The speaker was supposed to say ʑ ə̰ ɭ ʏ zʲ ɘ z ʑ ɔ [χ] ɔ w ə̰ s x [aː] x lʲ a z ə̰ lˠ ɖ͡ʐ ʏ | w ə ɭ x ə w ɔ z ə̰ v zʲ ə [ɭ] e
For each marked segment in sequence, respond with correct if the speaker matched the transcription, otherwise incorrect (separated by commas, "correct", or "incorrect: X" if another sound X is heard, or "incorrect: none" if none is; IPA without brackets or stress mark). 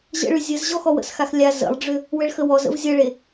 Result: incorrect: x, incorrect: a, correct